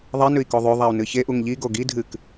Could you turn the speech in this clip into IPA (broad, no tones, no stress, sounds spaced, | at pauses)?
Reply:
ðˤ e n ʉ i̯ k o ðˤ ʉ ðˤ a u̯ n ɨ ç e ʔ u ŋ ʎ i ɡ o ɡ i dʱ ɨ k